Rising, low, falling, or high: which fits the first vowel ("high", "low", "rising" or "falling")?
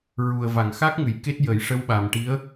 low